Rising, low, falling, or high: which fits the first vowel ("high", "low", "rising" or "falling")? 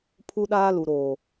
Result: high